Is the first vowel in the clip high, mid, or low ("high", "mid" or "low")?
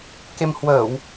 mid